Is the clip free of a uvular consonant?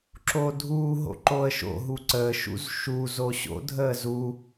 yes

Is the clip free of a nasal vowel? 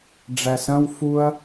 no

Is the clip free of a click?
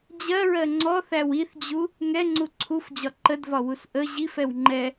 no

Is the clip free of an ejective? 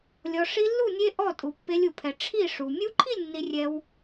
no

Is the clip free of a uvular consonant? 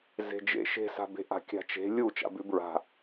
yes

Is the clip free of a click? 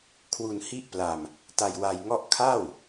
yes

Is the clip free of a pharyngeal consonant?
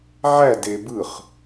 no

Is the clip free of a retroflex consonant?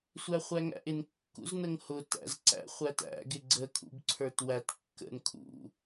yes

